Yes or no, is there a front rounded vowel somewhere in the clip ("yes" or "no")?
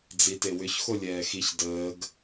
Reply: yes